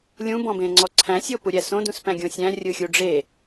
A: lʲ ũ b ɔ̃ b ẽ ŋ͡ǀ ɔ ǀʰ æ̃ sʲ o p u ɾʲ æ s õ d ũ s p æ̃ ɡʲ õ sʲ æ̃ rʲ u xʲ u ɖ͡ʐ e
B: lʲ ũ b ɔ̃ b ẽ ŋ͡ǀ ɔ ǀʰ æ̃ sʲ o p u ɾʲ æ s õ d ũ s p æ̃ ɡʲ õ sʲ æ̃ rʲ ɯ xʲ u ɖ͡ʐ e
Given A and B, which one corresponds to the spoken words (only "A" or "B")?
B